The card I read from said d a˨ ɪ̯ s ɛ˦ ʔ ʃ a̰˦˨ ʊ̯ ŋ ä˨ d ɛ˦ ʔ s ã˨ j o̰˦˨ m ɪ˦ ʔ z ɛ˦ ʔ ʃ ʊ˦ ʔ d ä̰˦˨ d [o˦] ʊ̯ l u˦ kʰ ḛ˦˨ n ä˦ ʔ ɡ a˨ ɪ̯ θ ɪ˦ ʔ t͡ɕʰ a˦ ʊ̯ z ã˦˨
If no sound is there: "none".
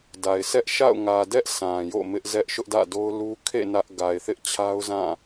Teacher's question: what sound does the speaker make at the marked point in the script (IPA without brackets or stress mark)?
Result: o˦